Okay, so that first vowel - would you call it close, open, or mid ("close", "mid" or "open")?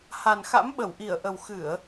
open